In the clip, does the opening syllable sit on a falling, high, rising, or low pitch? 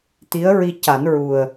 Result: rising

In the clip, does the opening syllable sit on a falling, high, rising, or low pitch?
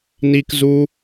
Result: high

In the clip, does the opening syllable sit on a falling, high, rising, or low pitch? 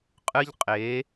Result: high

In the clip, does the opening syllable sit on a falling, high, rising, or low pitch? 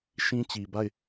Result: high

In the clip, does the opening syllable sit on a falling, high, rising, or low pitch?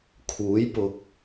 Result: rising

